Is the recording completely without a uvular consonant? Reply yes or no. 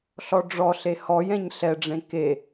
yes